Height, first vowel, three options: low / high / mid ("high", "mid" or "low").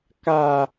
low